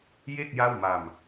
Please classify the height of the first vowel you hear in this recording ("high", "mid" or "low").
mid